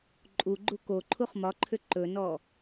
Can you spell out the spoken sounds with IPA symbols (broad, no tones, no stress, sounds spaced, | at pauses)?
ǃʼ u ɡ͡ǃ u k o ǃʰ u χ m ɒ ǃʰ ʏ ǃ ɵ n ɔ